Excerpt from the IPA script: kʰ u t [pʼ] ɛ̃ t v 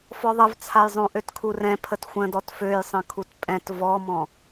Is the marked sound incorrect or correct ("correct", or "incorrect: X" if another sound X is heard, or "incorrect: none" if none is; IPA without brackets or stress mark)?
correct